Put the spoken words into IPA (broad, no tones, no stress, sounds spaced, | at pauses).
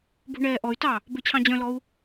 b ṳ ɳ ɛː ʔ ɔ y̯ t ɑ | b ø t͡ɕʰ ɑ̃ d͡ʑ œ̃ l ɔ u̯